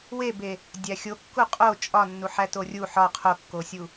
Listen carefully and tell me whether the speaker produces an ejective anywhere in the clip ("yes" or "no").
yes